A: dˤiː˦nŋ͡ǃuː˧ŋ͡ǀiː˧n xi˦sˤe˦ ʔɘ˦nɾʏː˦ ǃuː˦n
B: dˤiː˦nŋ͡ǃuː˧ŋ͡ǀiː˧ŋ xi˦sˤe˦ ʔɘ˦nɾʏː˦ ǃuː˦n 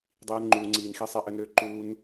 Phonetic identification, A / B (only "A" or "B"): A